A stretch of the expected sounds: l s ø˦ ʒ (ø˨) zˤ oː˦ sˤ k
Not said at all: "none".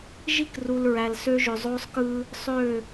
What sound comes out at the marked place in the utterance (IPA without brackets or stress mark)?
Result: ø˨